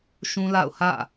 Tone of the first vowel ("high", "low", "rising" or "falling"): high